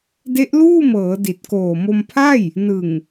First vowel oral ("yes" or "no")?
yes